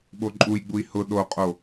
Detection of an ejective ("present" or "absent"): present